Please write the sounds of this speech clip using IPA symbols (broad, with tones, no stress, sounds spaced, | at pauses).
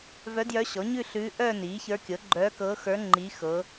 v œ˧˥ d j œ˧˥ ɕ ɔ˩˥ ɲ ʉ˥˧ ɬ ʉː˧˥ ʔ œː˥˧ n iː˩˥ ç ə˞˧˥ kʲ ɤ˩˥ ɡ͡ǃ œː˧˥ k ɤ˧˥ x ə˞˧˥ ŋ͡ǃ i˧˥ x ɤ˧˥